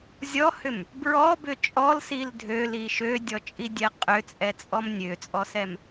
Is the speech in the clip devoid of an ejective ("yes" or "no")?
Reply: no